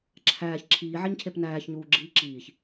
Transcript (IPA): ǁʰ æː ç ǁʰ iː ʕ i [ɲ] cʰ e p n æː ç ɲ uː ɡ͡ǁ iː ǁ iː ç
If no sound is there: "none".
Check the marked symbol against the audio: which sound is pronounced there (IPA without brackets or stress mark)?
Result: ɲ